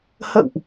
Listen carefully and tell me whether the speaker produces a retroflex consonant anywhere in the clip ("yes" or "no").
no